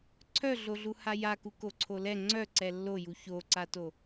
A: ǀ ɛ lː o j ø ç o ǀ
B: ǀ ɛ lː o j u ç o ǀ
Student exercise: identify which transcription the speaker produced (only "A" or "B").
B